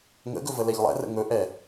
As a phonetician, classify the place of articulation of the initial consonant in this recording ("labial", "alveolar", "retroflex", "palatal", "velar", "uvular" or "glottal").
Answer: velar